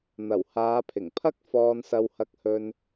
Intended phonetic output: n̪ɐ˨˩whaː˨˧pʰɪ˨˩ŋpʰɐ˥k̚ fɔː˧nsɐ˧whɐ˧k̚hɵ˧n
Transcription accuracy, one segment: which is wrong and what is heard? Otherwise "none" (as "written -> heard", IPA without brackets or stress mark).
none